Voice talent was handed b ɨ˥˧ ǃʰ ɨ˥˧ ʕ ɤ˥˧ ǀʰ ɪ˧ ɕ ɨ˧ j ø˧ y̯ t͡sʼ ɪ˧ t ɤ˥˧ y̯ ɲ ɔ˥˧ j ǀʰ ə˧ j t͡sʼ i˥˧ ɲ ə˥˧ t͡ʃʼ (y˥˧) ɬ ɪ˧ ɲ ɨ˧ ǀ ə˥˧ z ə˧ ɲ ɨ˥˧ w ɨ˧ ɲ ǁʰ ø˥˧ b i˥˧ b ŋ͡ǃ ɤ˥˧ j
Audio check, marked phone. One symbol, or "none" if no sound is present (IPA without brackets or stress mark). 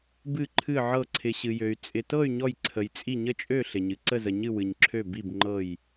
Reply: ø˥˧